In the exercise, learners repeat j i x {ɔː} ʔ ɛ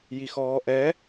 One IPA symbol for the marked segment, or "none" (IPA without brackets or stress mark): ɔː